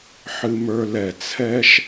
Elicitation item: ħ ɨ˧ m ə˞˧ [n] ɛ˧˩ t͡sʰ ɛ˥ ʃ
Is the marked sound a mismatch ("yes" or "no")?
yes